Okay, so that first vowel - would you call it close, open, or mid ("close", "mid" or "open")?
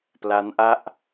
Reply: open